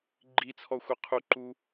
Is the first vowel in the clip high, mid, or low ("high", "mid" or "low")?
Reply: high